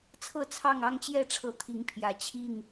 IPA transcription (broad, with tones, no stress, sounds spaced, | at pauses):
t͡sʰ ɤ˥˨ t͡sʰ ɑ˥˨ ŋ ɑ˥˨ ŋ t͡ɕ j ɛ˥˨ ʈ͡ʂʰ ɤ˨˦ t̪ʰ i˨˦ ŋ pʰ j ä˨˩ t͡ɕʰ i˥˨ ŋ